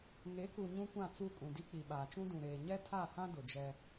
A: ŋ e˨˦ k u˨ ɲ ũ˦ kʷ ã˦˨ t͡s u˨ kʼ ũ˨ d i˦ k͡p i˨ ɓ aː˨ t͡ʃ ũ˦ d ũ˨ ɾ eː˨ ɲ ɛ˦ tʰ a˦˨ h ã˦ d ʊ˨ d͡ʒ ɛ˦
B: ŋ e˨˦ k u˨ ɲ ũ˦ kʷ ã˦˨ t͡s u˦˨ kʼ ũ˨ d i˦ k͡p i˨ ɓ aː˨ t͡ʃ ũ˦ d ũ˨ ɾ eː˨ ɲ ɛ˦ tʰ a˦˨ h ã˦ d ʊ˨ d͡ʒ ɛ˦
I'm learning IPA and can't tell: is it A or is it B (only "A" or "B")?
B